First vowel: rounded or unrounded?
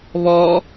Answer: rounded